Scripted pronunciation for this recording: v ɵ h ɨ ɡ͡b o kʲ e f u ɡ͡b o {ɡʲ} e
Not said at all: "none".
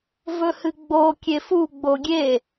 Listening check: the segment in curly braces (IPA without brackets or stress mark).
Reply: ɡʲ